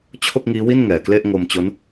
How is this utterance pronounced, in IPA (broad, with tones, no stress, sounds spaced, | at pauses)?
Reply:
t͡ɕʰ o˥˩ k̚ ŋ iː˦˥ w i˥˩ n ŋ ɛː˨˩ k l e˥˩ ʔ ŋ o˧ m t͡ɕ o˦˥ n